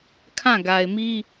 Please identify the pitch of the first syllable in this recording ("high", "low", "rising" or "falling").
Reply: falling